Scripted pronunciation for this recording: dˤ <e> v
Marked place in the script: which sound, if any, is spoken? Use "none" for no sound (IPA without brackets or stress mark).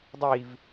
i